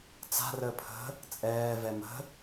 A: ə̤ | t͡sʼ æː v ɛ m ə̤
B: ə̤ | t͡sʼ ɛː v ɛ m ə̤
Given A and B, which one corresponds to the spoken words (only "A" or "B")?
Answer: B